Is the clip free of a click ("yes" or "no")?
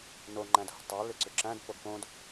no